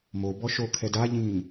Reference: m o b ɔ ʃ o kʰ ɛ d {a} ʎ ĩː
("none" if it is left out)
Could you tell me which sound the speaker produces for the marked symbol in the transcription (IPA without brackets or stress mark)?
a